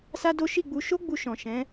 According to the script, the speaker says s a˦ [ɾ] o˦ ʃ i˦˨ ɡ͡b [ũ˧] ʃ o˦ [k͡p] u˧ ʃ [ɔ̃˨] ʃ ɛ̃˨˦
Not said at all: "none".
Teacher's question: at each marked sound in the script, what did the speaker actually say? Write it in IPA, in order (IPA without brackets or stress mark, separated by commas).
d, u˧, ɡ͡b, ɔ̃˨